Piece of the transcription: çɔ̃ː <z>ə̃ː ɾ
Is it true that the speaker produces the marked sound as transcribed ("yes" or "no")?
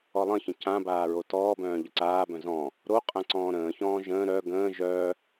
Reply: no